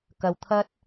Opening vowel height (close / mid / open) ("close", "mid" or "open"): open